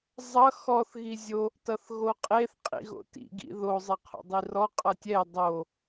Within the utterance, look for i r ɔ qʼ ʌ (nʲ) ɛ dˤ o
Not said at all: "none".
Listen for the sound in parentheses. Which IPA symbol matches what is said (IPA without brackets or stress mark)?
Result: tʲ